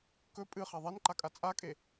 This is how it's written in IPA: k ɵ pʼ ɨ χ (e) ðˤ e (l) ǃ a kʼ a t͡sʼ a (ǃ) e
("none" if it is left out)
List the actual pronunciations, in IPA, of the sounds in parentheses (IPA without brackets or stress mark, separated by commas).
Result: e, n, kʼ